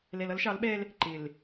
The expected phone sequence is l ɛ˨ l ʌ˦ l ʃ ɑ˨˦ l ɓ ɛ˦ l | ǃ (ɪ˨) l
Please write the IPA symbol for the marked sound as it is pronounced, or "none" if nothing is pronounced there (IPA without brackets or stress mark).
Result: ɪ˨